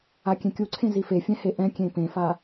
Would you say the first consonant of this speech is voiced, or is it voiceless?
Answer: voiceless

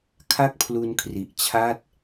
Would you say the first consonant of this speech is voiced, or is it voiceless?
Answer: voiceless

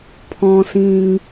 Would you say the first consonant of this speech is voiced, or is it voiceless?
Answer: voiceless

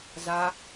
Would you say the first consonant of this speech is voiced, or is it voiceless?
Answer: voiced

